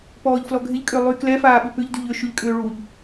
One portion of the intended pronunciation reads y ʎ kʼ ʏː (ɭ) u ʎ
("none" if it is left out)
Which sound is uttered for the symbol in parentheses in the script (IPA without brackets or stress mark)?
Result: ɭ